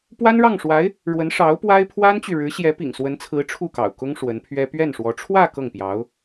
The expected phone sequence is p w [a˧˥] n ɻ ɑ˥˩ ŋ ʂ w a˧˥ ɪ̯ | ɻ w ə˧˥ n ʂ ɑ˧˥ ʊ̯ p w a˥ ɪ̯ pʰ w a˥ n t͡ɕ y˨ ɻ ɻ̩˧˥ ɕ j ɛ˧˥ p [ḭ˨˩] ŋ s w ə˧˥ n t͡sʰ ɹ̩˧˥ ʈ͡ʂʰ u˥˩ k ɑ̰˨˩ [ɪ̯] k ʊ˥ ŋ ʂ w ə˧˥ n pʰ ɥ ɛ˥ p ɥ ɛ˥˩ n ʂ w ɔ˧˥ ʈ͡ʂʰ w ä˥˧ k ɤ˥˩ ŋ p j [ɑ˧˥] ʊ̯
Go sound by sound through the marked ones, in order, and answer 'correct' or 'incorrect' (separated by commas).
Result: incorrect, correct, incorrect, correct